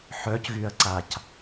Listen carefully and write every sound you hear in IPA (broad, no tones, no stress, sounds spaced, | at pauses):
ħ œ c ɣ y ɐ̯ ǀ a c